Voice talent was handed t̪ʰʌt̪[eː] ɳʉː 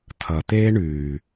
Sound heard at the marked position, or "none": eː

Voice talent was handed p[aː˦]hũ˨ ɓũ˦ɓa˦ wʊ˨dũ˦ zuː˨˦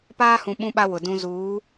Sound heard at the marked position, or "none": aː˦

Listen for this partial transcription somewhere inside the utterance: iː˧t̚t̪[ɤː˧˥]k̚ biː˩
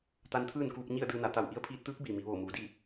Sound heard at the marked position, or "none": ɯː˧˥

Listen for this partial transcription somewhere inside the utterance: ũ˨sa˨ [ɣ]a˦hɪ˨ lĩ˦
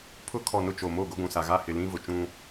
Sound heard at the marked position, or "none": ɣ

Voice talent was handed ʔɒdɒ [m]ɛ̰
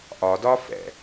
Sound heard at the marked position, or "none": f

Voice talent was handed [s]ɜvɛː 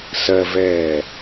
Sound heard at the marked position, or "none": s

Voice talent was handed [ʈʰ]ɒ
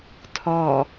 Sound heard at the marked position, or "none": tʰ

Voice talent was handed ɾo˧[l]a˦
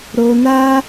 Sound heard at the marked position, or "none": n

